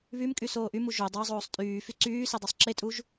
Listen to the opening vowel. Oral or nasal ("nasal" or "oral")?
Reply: oral